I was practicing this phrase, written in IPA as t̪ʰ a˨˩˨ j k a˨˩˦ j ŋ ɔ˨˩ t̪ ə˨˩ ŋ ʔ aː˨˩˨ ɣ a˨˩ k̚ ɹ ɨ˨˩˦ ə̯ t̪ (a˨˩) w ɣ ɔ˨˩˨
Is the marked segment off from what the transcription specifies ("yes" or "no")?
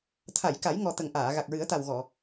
no